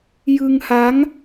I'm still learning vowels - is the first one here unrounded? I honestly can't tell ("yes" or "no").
yes